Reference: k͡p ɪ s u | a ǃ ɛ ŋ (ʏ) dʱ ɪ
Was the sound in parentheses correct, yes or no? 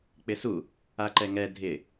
no